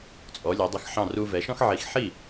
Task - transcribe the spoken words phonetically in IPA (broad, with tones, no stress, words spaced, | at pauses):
t͡sʼɔ˩˥lʲɑ˩˥dˤə˧xħɑ̃˥˩ ru˧vɛ˩˥ʃɔ̃˥x ʕi˩˥xħi˥˩